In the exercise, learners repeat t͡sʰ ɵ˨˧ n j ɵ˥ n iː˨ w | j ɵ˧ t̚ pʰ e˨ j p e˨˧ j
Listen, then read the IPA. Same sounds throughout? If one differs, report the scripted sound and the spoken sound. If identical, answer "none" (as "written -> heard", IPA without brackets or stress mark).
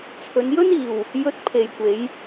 p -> kʷ